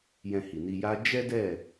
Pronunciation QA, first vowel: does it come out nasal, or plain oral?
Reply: nasal